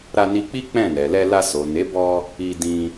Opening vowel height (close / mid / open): open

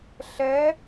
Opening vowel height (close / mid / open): mid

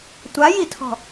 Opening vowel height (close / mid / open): open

